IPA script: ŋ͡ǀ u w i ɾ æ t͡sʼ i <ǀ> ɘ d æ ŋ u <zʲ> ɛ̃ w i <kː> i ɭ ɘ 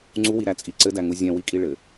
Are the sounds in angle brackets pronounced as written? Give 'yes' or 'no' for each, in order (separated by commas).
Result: yes, yes, no